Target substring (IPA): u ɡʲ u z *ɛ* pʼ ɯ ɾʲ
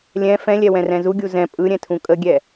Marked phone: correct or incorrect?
incorrect